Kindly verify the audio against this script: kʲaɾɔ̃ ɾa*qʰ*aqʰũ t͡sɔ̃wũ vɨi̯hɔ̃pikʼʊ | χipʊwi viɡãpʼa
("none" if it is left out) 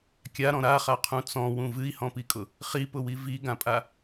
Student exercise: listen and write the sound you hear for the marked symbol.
χ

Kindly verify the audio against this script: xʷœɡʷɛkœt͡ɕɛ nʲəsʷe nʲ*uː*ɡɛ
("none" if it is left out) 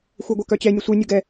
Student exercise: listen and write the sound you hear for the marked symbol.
u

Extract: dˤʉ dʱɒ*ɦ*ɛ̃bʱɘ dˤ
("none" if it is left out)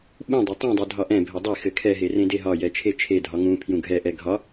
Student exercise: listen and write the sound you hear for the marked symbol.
ʔ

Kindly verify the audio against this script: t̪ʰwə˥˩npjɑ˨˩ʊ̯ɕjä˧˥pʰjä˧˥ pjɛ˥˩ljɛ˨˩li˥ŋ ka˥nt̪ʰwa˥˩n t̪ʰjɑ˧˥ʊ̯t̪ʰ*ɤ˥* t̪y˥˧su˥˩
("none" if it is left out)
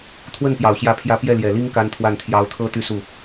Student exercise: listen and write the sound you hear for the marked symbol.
ɤ˥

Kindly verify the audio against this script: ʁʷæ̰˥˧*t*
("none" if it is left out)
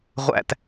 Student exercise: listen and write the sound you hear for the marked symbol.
t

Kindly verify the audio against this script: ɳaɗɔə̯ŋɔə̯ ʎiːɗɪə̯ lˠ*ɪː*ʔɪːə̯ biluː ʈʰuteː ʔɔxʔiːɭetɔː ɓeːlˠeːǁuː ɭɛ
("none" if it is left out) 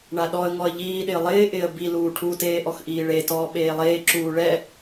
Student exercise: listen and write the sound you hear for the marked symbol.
ɪː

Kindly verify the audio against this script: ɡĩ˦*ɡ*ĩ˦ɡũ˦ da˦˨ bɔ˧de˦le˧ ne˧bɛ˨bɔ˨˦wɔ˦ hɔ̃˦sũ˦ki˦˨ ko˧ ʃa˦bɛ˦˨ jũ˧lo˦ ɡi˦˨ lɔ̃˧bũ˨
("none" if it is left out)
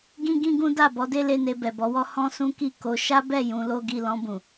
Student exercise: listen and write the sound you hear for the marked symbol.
ɡ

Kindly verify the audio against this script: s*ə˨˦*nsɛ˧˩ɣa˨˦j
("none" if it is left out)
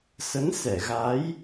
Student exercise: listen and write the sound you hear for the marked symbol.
ə˨˦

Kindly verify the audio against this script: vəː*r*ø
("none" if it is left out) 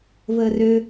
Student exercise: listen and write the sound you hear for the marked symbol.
r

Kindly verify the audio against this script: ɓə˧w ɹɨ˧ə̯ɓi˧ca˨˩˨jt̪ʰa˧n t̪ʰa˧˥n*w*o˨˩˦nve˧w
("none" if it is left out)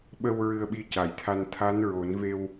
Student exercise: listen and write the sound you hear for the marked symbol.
ɹ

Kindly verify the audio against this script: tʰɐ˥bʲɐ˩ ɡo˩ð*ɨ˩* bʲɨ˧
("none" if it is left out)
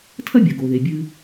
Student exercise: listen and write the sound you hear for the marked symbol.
e˩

